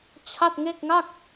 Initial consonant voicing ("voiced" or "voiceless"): voiceless